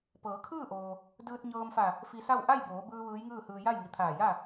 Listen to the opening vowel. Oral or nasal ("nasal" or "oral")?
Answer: oral